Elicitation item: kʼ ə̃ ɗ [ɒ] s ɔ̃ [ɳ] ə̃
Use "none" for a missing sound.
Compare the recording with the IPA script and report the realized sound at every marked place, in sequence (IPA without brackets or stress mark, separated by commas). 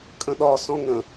ɒ, ŋ